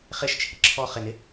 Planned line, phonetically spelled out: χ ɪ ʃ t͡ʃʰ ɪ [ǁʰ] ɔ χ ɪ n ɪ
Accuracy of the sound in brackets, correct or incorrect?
correct